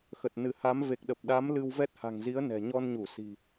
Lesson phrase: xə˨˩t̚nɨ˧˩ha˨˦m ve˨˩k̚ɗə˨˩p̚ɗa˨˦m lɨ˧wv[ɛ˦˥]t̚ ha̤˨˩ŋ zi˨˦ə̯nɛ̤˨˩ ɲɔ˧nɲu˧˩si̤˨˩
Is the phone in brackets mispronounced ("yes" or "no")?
no